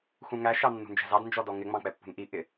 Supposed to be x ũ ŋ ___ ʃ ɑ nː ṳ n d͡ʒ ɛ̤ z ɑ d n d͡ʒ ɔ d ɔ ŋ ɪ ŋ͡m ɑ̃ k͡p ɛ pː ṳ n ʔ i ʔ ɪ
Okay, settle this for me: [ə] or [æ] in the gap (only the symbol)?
æ